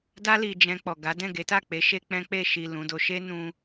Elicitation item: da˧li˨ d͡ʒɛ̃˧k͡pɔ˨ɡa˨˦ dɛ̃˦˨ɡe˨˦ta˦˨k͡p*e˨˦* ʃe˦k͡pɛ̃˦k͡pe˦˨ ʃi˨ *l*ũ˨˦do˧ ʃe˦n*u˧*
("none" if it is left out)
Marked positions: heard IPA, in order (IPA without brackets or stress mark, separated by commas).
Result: e˨˦, l, ũ˧